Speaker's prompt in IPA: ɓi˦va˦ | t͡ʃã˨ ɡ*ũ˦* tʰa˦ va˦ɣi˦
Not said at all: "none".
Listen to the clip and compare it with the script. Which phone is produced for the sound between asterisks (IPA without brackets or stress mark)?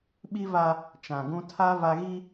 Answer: ũ˦